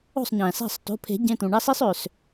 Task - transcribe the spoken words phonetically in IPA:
o̤˥˩sˤɲæ̃˩sæ̤˥˩sˤ to̤˩˧˩pʰe̤˨˩˦ɟẽ˩˧˩t̪ũ˩ ɳɑ˦si˦sˤø˩s

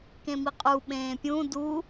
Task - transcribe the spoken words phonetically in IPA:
kẽmiqʼu ɓẽːpʲũ du

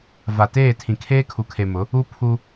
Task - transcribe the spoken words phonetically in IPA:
va˨teː˦˨ tʰĩ˨kʰeː˦kʰu˨kʰe˨ mʊ˨˦ | u˦pʰu˦

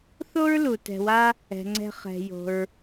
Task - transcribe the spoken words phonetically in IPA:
θo˥ɹlu˩tɛ̤˨wa˦ | ɛ̤˩ŋ͡ǀɛ̤˨ χɛ̤˩jo̤˩ɹ

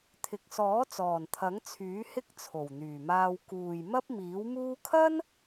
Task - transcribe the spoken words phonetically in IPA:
t̪ʰɪ˨k̚sɔː˨˥t͡sɔː˨˩n t̪ʰɐ˨˥ŋt͡sʰyː˨˥hɪ˥k̚ t͡sʰo˨˩wn̪yː˨˩maː˧w kuː˨jmɐ˥p̚miː˨˥wmuː˥ kʰɐ˥n

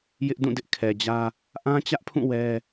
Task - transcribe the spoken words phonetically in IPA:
jɪ˦ʔdũ˦˨ dɪ˦ʔkʰɛ˨d͡ʑä˦ | ʔã˦t͡ɕä˦ʔpʰũ˦˨ wɛ˦

